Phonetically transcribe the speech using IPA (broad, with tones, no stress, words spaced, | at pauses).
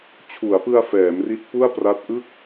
t͡ɕʰu˩˦a̯pɯ˧a̯ fɛː˩˦mri˦˥t̚ pu˥˩a̯pra˦˥t̚ ʔɯ˥˩k̚